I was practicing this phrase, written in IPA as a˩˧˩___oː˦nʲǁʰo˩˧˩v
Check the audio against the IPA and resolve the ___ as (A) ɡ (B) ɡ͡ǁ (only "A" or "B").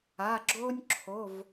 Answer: B